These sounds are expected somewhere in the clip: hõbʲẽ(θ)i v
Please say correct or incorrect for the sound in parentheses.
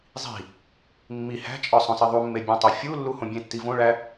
incorrect